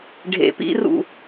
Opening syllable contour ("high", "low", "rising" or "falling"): low